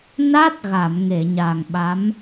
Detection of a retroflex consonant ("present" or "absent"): absent